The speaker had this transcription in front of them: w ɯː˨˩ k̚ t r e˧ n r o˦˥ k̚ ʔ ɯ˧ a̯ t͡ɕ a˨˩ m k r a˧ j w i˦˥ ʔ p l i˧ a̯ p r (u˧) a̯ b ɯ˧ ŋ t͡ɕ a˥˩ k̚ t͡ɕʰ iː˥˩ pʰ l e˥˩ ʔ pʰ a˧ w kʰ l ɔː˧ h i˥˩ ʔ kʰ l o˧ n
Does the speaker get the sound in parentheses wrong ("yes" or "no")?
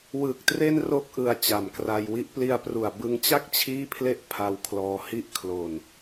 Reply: yes